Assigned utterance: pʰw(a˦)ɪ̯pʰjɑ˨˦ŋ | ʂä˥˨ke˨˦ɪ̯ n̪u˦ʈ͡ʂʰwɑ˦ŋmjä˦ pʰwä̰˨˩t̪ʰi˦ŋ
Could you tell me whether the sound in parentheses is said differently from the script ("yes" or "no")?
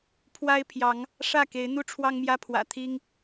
no